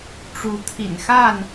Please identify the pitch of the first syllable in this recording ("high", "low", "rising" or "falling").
rising